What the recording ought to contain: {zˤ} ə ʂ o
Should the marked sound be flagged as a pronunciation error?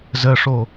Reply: yes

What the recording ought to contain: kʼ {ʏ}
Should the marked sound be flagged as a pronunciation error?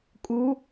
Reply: yes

